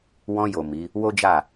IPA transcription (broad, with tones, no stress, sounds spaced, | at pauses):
w ɔ̃˧ j o˨ m i˨˦ | w o˦ d͡ʒ a˦˨